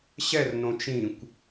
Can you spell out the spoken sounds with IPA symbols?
ɕ ɛ r n õ t͡ʃ ĩ kʷ

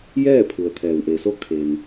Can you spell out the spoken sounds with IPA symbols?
j ɛː˥˨ pʰ u˩ ə̯ t̪ʰ ɛː˩ w ʔ e˩ s o˧ kʰ e˩ n

